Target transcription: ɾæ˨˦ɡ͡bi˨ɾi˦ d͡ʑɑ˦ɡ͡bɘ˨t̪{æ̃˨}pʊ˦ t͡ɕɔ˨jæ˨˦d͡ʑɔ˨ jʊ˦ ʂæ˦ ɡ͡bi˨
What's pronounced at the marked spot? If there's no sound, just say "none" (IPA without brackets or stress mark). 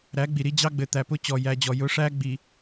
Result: æ˨